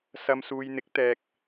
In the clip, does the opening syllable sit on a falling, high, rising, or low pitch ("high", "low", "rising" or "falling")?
low